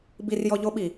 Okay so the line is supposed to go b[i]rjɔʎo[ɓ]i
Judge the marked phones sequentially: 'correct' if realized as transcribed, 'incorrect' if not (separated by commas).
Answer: correct, correct